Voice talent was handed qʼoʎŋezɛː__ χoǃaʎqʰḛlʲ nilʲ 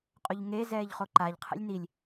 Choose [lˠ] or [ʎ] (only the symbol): ʎ